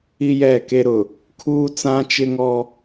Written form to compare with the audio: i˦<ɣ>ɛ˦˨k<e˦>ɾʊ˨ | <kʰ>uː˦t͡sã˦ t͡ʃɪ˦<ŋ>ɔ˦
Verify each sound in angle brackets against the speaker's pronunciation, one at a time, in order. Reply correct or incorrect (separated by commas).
incorrect, correct, correct, correct